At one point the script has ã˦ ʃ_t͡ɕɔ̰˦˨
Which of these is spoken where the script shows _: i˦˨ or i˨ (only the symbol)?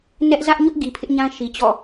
i˨